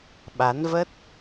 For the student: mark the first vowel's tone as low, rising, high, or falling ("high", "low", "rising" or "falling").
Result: rising